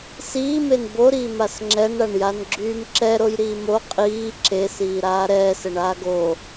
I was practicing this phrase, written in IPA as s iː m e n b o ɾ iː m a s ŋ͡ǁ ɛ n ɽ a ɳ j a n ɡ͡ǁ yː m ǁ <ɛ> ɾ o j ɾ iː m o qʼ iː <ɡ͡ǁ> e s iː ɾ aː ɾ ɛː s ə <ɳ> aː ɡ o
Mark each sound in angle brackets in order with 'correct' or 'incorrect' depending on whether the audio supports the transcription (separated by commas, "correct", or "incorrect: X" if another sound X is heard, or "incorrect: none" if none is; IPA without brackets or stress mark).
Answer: correct, incorrect: ǁ, correct